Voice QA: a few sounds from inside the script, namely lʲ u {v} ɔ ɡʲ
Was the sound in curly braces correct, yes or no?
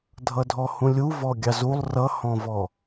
yes